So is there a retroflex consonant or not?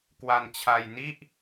no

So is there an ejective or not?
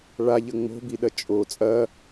yes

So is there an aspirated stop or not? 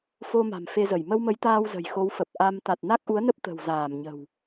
no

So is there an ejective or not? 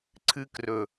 no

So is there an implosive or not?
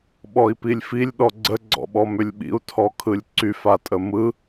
yes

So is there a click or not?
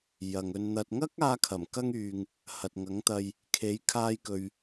no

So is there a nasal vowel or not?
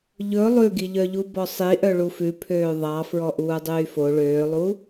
no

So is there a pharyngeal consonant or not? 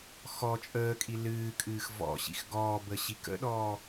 no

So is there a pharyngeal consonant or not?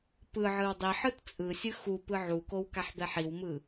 yes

